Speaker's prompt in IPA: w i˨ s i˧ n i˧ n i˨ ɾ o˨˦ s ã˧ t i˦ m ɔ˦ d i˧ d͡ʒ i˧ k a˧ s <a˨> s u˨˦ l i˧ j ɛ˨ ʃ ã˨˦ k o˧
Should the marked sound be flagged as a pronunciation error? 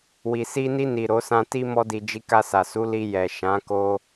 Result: no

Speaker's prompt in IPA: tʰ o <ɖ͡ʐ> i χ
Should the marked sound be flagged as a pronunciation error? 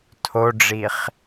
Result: no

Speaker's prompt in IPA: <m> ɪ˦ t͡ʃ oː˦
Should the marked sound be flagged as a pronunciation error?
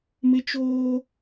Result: no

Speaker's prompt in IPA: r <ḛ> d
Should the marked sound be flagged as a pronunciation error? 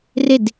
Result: yes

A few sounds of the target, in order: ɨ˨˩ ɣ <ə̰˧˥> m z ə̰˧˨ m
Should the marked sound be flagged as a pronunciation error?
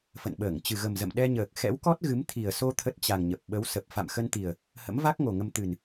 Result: yes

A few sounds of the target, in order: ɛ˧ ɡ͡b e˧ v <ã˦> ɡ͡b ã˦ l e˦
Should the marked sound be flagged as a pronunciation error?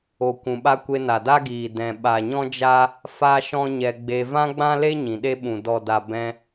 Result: no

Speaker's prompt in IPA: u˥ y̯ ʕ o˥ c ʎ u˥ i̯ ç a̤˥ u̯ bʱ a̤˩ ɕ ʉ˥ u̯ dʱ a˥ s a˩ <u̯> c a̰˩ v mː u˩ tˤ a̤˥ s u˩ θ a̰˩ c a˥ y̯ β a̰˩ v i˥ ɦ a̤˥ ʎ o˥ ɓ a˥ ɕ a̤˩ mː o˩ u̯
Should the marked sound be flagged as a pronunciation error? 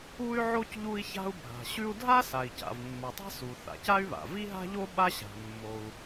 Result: yes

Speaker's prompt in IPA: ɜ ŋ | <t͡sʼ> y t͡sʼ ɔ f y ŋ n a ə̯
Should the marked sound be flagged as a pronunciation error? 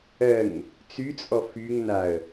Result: yes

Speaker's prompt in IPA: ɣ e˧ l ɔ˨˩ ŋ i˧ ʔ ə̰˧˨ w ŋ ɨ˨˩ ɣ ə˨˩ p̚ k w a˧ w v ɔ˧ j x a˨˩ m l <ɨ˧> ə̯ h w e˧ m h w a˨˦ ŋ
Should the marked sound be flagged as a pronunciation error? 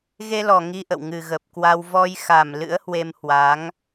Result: yes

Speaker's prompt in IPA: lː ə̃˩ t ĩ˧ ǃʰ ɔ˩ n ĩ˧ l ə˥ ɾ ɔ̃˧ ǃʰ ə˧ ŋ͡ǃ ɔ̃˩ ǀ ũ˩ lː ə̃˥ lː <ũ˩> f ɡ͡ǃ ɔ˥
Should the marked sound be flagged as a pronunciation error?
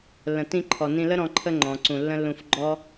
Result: yes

